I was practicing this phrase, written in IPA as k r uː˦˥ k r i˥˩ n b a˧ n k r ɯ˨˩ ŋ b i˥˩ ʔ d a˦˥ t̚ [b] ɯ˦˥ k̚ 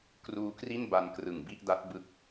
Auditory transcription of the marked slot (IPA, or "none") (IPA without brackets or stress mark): b